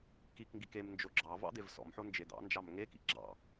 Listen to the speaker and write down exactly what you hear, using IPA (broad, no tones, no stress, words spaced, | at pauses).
kikŋɡik emnd͡ʒo ɡ͡ǁɑ vɑ̰d̪evsɔ̰mħo nd͡ʒed̪ɑ̰nd͡ʒɑm ŋekḭ ɡ͡ǁɑ̰